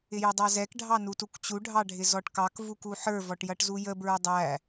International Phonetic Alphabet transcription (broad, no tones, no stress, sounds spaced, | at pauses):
ɪ j ʊ dˤ ɑ z ɛ k ɖʱ ɑ n u t u k t͡ɕ u ɖʱ ɑ ɖʱ ɪ z ɔ ʈ k ɑ k v u k u ħ ə˞ v ɔ ʈ j ʌ ʈ z u j ə b ɹ ə˞ dˤ æ